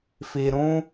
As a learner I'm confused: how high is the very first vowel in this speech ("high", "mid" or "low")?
high